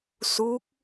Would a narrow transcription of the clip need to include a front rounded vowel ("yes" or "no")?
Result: no